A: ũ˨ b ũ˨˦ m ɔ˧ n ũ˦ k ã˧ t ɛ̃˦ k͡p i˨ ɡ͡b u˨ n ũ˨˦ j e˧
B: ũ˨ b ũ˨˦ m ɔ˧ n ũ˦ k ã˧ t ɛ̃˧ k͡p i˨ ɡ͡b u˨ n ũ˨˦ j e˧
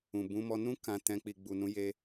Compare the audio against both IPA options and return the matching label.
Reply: B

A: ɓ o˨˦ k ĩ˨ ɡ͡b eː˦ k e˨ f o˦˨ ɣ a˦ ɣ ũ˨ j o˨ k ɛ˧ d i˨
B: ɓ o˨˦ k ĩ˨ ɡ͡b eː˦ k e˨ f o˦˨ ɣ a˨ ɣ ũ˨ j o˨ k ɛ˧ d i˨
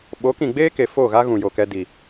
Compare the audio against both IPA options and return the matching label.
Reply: A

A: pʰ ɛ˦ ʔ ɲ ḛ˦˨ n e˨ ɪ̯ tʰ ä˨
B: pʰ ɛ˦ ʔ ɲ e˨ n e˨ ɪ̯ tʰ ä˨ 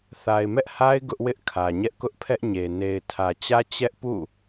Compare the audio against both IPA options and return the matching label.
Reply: B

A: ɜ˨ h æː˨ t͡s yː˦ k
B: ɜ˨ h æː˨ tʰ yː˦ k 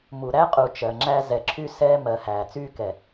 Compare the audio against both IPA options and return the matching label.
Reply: A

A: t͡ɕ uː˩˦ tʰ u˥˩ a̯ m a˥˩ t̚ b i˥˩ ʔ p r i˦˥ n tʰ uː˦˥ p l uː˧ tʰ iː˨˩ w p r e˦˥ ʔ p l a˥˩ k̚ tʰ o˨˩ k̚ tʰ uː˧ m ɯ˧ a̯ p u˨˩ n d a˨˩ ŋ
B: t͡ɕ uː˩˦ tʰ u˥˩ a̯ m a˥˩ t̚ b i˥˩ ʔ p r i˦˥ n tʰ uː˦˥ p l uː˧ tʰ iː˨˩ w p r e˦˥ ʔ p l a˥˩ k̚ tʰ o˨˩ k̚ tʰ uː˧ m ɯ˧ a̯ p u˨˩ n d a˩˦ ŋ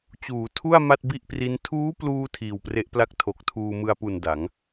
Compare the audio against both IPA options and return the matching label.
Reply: B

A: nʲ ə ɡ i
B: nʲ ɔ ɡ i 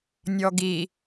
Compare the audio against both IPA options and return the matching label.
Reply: B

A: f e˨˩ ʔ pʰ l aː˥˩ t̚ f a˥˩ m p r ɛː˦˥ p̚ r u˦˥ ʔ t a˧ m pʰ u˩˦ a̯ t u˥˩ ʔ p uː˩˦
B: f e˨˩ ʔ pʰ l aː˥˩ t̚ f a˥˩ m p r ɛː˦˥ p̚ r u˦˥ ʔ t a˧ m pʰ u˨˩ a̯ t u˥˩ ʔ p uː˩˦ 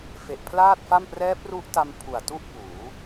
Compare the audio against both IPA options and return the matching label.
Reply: B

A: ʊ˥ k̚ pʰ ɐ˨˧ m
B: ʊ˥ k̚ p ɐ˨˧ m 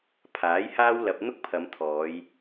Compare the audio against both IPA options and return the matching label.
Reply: A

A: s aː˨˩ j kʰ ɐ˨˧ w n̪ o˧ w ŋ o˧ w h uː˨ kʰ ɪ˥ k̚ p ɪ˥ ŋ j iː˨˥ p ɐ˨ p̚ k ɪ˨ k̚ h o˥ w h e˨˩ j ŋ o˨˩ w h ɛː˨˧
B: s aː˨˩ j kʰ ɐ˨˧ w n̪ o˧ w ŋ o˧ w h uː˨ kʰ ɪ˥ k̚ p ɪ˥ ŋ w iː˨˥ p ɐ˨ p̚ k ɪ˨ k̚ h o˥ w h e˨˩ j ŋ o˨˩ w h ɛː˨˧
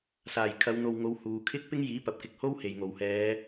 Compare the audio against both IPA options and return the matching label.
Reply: A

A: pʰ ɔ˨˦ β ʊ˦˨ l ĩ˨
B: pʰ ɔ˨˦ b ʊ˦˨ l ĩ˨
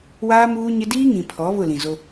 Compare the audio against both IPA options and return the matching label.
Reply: A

